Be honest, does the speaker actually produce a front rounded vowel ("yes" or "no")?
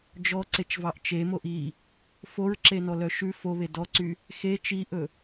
yes